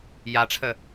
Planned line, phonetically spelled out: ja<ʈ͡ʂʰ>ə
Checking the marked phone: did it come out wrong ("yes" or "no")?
no